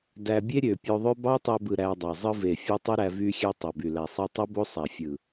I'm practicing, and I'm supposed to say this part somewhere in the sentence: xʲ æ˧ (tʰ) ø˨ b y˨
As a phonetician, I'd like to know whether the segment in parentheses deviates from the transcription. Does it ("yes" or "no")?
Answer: yes